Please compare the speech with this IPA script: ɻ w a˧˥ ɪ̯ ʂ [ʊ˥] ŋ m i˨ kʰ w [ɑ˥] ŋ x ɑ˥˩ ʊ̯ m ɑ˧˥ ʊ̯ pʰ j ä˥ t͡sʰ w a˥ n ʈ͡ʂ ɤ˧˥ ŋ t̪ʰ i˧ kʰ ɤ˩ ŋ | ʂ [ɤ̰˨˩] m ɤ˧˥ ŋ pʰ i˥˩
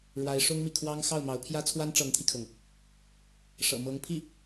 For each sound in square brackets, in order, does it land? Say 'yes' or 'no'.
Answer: yes, yes, yes

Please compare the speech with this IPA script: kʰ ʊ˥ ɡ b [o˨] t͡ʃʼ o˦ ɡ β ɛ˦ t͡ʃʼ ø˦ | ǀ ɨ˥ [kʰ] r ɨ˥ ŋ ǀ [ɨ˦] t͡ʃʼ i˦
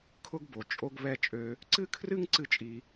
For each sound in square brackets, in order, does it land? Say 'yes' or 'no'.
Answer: yes, yes, no

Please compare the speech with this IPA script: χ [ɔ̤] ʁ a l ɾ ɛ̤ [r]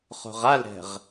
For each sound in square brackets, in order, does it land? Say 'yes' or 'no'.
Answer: no, no

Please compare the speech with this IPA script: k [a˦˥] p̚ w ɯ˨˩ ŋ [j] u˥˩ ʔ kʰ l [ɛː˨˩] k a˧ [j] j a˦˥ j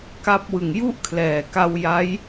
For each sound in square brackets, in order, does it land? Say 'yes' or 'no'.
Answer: yes, yes, yes, no

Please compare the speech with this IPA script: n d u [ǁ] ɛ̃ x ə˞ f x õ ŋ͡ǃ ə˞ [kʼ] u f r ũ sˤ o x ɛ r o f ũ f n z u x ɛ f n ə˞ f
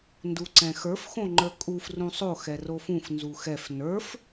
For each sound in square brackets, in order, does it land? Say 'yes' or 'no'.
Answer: no, yes

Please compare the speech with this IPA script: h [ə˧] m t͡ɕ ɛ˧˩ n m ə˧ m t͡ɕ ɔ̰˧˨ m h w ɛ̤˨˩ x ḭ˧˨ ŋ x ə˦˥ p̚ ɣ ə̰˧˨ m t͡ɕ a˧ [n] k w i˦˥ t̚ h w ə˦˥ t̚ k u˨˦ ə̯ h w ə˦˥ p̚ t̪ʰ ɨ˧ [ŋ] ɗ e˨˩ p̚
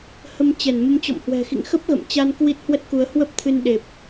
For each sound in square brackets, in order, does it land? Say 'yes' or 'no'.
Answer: yes, yes, no

